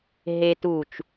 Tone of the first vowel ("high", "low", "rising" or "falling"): high